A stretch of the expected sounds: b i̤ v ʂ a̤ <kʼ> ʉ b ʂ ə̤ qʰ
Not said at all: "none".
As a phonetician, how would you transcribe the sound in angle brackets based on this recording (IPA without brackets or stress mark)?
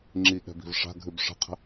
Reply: ɡʱ